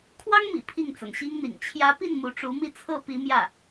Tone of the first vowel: high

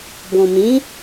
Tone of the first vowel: low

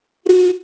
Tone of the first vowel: high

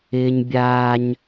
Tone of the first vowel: high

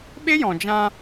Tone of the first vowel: high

